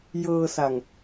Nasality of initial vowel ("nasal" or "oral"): oral